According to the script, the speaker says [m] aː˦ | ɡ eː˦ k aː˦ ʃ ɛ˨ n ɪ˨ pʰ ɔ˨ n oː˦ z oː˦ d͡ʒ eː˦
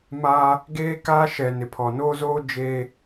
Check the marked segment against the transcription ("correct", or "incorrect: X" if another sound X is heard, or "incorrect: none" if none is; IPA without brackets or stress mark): correct